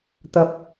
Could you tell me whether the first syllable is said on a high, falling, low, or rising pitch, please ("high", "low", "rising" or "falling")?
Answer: rising